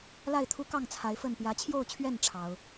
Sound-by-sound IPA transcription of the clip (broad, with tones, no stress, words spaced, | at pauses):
la˥˨ɪ̯t̪ʰu˦kɑ˥˨ŋ t͡sʰa˨˦ɪ̯fə˥˨n pjä˨˦t͡ɕʰjo˥˨ʊ̯t͡ɕʰɥɛ˥˨n ʈ͡ʂʰɑ˨˦ʊ̯